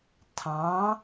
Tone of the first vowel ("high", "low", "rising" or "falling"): rising